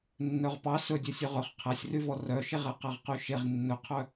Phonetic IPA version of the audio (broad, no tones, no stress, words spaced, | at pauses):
nːœʁpɑ sɵdʲɛsʲɵ ʁɵχ qʰæsʲryvɔ rœʃeʁæ qæʁqyʃeʁ nːɵqʰœ